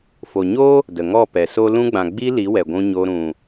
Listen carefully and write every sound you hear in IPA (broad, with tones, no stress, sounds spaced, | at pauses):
f o˨ ɲ o˦ | d ə˨ ŋ ɔ˦˨ p ɛ˨ s o˦ l ũ˧ ɡ͡b ã˨ ɡ͡b i˧ l i˨˦ w ɛ˨ ɡʷ ũ˧ ɲ o˧ ɾ ũ˨